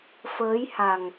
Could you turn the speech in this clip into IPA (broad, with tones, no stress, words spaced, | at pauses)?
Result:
fəː˨˦jha˨˩ŋ